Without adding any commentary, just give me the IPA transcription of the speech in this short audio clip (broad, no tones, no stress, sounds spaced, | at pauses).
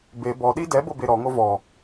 b e b ɔ ɗ i d ɛ b ɤ b e ɾ ɔ ŋ o v ɔ